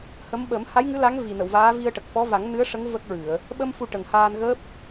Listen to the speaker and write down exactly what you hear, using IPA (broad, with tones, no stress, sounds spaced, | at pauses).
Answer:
h ə˧˥ m ɓ ə˨˩˦ m h a˧˥ j ŋ ɨ˧˥ l a˧˥ ŋ v i˨˩ n ə˨˩˨ w v aː˧˥ v i˧ ə̯ ʈ ə˨˩ k̚ f ɔ˧˥ v a˨˩˦ ŋ n ɨ˧˥ ə̯ ʂ ə˧˥ ŋ v ə˦˥ k̚ ɹ ɨ˨˩˨ ə̯ | ɓ ə˧ m f u˧ ʈ ə˨˩ ŋ h aː˧ n ɣ əː˦˥ p̚